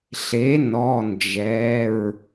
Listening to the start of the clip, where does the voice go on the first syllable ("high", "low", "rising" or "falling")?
rising